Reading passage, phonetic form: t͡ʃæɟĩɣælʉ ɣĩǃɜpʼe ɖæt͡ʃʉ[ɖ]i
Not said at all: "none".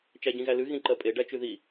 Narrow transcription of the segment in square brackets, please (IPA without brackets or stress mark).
ð